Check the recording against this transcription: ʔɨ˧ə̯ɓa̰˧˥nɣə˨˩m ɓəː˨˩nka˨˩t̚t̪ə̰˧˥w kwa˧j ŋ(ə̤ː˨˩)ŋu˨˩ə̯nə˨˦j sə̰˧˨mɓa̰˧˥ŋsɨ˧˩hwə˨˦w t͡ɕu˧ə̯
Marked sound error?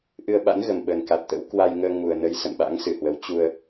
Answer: yes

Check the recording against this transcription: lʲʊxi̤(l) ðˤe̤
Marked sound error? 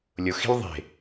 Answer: no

